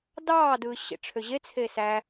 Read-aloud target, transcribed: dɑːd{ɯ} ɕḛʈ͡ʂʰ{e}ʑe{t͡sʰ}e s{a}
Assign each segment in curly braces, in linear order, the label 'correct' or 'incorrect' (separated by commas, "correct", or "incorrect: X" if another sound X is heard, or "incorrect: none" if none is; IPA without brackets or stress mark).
correct, incorrect: ø, correct, incorrect: æ